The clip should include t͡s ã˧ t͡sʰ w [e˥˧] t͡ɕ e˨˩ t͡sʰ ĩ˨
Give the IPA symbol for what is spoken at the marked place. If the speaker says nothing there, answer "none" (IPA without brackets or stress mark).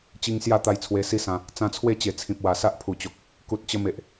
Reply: e˥˧